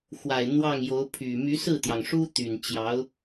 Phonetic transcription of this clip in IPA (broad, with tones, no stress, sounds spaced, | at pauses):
x w a˨˩ ɪ̯ n̪ w ɑ˥˩ ŋ j o˧˥ ʊ̯ pʰ y˨˩ m y˧˥ s ɹ̩˥˩ t̪ j ɑ˩ ŋ ʂ u˥ t̪ y˨˩ n t͡ɕ j ɑ˧˥ ʊ̯